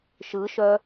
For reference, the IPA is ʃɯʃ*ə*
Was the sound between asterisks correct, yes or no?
no